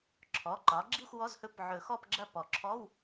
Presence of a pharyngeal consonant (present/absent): present